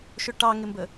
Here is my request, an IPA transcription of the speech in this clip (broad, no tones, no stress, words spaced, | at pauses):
ʃʊʈɑŋɪmbə